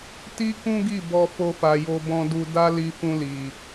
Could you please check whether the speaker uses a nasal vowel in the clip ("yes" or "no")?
yes